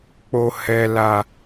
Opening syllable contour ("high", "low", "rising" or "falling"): low